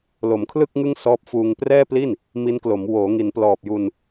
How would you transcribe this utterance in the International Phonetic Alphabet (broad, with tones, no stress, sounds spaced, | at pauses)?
l o˩˦ m kʰ l ɯ˥˩ k̚ ŋ ɯ˥˩ ŋ s ɔː˦˥ p̚ f uː˧ ŋ p r ɛː˥˩ p l i˥˩ n | m i˦˥ n k l o˩˦ m w oː˩˦ ŋ i˩˦ n p l ɔː˨˩ p̚ j u˧ n